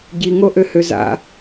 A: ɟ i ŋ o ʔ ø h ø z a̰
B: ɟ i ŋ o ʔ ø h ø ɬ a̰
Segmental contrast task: A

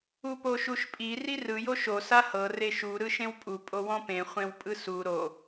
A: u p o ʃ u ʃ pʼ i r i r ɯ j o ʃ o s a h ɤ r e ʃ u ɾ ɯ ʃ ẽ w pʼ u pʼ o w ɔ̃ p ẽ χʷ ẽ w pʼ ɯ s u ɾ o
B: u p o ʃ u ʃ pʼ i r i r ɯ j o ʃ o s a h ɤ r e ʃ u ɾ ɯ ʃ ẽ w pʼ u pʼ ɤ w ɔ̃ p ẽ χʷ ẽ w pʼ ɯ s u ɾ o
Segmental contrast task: A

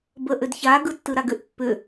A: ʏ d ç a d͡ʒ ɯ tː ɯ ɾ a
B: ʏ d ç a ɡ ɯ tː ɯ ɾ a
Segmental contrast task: B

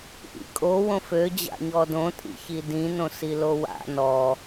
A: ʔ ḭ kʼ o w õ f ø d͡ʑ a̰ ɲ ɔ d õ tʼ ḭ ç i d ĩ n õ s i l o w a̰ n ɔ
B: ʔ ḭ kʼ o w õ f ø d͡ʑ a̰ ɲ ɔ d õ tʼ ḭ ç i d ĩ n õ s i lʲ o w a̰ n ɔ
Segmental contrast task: A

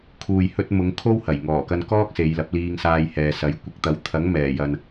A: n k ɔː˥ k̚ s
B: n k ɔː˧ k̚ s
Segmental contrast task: A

